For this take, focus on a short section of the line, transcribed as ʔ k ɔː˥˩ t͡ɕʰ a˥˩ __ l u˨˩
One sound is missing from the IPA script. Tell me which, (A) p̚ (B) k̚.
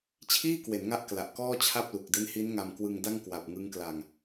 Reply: A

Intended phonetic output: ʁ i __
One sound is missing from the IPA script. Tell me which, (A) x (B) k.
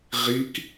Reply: B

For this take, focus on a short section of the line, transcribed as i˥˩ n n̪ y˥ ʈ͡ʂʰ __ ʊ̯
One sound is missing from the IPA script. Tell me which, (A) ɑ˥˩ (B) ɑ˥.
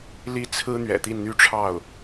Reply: A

